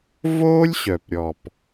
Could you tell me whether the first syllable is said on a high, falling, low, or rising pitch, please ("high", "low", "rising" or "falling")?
high